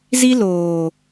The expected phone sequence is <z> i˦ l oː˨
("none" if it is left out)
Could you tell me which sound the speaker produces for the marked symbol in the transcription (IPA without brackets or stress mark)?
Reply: z